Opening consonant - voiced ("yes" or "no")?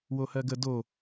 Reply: yes